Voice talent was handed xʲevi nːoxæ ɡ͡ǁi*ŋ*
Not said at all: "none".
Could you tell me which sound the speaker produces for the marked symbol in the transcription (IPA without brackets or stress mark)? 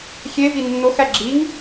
ŋ